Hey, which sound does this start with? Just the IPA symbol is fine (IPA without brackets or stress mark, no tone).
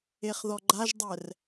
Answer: e